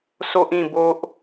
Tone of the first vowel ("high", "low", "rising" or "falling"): high